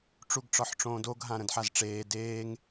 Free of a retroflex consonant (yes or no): no